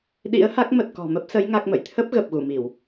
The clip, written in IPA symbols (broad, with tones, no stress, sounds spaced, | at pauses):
ɗ ḭ˧˥ ə̯ h a˦˥ k̚ m ə˨˩ t̚ k ɔ̤˨˩ m ə˦˥ p̚ s ə˨˦ j ŋ a˦˥ k̚ m ə̰˧˨ j t̪ʰ ə˦˥ p̚ ɣ ə˨˩ p̚ ɣ u˧˩ m i˧˩˨ w